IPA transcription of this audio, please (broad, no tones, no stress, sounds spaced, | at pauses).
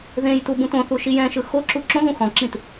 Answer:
ð ẽ j t u b ũ t õ θ u ʃ i j ɛ̃ ʃ ɯ x o ǁ u ǁ õ ð ũ x ɔ̃ ǁ ĩ t